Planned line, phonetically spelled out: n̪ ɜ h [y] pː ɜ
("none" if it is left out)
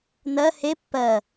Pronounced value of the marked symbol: e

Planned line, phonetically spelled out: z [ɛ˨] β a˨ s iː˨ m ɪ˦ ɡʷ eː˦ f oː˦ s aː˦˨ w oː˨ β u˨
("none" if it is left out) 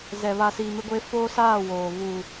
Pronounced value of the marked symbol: ɛ˨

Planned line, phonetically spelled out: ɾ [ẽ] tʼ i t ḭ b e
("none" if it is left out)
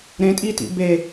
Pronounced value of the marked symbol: ẽ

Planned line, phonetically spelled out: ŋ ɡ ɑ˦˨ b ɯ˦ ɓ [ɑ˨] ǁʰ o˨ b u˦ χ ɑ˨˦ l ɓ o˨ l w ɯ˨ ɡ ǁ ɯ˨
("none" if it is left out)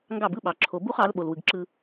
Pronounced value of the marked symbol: ɑ˨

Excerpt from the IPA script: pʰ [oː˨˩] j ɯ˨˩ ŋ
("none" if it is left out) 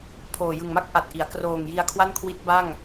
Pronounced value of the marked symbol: oː˨˩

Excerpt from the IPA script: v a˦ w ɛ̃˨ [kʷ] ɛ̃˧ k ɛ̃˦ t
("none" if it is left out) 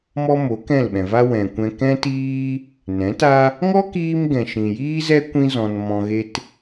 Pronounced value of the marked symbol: kʷ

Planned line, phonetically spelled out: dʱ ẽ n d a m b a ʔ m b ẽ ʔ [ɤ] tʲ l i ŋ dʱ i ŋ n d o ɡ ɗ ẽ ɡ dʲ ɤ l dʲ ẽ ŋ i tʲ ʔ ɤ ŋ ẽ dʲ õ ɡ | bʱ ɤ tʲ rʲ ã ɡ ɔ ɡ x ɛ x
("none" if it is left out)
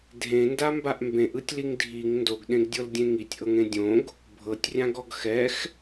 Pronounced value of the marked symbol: ɯ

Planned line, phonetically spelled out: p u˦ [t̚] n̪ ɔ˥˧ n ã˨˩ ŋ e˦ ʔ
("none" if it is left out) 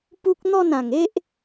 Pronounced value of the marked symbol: k̚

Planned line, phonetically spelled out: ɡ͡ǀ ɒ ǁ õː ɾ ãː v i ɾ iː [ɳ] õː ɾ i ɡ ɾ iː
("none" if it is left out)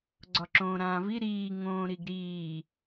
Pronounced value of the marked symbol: ŋ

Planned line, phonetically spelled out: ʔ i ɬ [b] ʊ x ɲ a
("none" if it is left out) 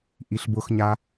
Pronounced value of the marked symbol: b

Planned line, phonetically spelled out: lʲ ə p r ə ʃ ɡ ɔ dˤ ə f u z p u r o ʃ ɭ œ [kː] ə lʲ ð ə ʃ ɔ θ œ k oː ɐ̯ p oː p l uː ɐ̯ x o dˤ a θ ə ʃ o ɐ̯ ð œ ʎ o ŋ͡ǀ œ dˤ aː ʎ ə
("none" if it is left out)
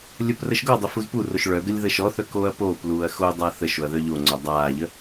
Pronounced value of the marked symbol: ɡ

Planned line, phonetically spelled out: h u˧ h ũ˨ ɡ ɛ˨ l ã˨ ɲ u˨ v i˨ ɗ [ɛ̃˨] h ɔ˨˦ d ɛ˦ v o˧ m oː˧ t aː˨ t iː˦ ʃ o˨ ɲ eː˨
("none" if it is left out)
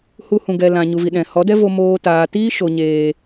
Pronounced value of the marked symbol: ɛ̃˨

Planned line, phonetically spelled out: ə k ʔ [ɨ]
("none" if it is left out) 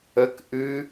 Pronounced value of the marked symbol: ɨ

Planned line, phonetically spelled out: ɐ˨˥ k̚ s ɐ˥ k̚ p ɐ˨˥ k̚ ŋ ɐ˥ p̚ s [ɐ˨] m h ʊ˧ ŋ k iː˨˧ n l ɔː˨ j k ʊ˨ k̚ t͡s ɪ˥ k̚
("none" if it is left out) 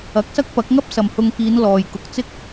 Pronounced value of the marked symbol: ɐ˨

